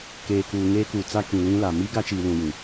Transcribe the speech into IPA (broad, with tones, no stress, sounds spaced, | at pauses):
k eː˨ k uː˨ ŋ eː˦ k uː˨ t͡s a˦ k ĩ˨ l ĩ˦ l a˨ m i˦ ɡ a˦ t͡ʃ iː˨ l ũ˨ j ĩ˨